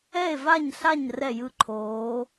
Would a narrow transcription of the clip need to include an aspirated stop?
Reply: yes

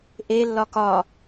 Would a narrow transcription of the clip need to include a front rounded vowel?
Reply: no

